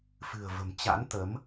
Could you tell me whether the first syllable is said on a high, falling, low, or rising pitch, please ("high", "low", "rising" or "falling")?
low